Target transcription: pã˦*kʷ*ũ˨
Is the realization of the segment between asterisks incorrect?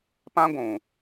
yes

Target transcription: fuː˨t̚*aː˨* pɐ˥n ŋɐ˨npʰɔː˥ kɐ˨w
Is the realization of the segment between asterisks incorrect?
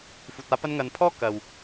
yes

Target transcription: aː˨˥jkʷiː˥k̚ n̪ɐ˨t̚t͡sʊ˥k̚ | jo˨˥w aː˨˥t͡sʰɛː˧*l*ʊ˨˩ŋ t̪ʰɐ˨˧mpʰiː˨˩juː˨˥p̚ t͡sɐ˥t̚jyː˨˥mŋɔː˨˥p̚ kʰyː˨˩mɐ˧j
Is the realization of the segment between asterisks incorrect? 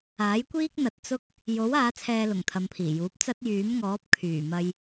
no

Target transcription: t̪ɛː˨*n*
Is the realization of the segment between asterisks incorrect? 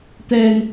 no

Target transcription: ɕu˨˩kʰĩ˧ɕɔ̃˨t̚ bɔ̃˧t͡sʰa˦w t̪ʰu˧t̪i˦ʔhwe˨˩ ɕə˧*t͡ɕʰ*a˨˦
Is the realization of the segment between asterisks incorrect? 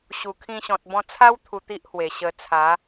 yes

